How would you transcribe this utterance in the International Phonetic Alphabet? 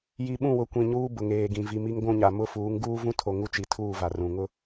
ji˨ɓũ˦˨ wʊ˨ kʷĩ˨ɲuː˦ bʊ˨ŋeː˨ɡĩ˨ vi˨mi˦ŋ ɡʷũ˦˨ɲa˨ mʊ˦ fuː˨˦ŋɡuː˦vũ˦tʰo˨ ŋu˦t͡ʃi˨˦ tʰuː˦˨va˨ rũ˨ ŋʊ˦

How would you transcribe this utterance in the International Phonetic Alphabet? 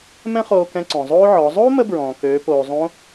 mɛ̃˥χoː˧kɛ̃˧ ǀɔ̃˩zˤoː˥ʕɔ˩˧ zˤoː˥mə˧bɹɔ̃ː˩ køː˩˧poː˩zˤõ˧˥

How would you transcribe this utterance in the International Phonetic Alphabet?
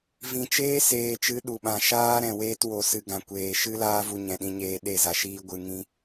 vĩ˨ t͡ʃeː˦seː˨t͡ʃɨ˨˦ ɗu˨ɓã˨ ʃaː˦ɾɛ̃˨ weː˧two˨sɨ˨ɡã˨ kʷeː˨ ʃɨ˦laː˦vu˧ ɲɛ̃˨ɗĩ˧ɲeː˧ ɗe˦˨za˧ʃiː˦ ɡʷɨ˧ŋĩ˦

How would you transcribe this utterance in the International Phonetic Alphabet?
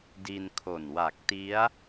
di˧nkʰo˨˩nwa˨˩k̚ti˦˥a̯

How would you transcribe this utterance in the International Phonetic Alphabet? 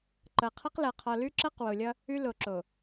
ǃɤ˨qʰʌ˦qlɤ˨ qʰɔ˨lʉ˦ǁɤ˦q wo˨lʲʌ˦ | ʉ˦ lo˨ǁo˨

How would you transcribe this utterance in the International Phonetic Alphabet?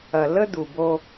ɐ˨ lə˦d̪u˨ bo˦

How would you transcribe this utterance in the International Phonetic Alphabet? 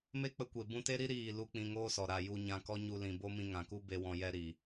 me˦k͡pə˧kʷe˨ bũ˧te˦ɾi˦ ɾiː˦˨ lu˧ k͡pĩ˧ŋoː˦sɔ˨ ɾa˨ ju˧ ɲã˧kɔ˦ ɲu˧lĩ˨bo˦ mĩ˧ŋã˨ku˦ be˦wɔ̃˧jɛ˦ ɾi˨

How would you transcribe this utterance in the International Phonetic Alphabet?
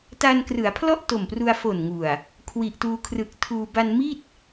ta˧nkrɯ˩˦a̯pʰlɔ˥˩ʔ to˨˩mpru˧a̯ fo˨˩nŋu˨˩a̯ | kʰwi˨˩ʔtuː˧kʰrɯ˨˩k̚tʰuː˧ ba˧nmi˥˩t̚

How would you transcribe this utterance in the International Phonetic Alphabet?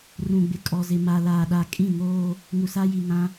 rũ˨ɡ͡bɪ˨kʼɔ˨zɪ˨ ma˨laː˨ɗa˨ kʼĩ˦˨ ŋoː˦ | ŋu˨sa˦ji˨ ŋã˦

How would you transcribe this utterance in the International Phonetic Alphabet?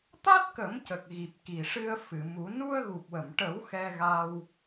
t̪a˦˥t̚kə˨˩˦mcə˨˩k̚ ɣi˨˩p̚ki˨˩ʂɨ˧ə̯ fɨ˨˩˨mu˨˩˦ nu˧ə̯ɣu˨˩p̚wə˨˩˨mʈə˨˩˦w xɛ˧ɣa˧w

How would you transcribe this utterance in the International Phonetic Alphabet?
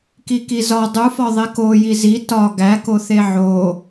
kikizɒ dˤufɒ ðˤeko jizi tɒ ɡækoθe ʕo

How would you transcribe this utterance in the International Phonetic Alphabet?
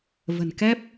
və̤˨˩nkɛ˦˥p̚

